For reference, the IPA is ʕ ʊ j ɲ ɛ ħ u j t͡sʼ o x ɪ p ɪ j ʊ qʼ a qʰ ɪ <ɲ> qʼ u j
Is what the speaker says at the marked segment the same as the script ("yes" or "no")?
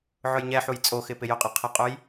no